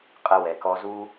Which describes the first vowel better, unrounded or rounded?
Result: unrounded